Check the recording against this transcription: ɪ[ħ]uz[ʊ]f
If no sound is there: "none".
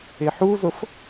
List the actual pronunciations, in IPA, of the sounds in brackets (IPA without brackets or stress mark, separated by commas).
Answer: ħ, ʊ